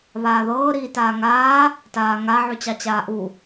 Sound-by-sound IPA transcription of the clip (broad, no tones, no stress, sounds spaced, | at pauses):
β aː ð ɤː ɾ iː t aː ŋ aː | t aː ŋ a ʕ ʉ t͡ɕ ɑ t͡ɕ aː ʔ u